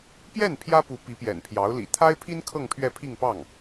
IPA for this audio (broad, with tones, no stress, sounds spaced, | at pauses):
p j ɛ˥˩ n pʰ j ä˥ p u˧˥ p i˧˥ p j ɛ̰˨˩ n pʰ j ɑ˧˥ ʊ̯ l ḭ˨˩ t̪ʰ a˥ ɪ̯ pʰ i˥ n kʰ ɤ˥˧ ŋ pʰ ɥ ɛ˥˧ pʰ i˥˧ ŋ p ɑ˥˩ ŋ